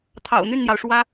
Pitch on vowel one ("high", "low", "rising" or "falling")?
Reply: low